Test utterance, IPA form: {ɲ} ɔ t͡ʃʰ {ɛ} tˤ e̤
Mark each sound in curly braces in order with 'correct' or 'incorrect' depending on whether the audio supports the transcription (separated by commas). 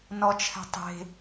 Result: incorrect, incorrect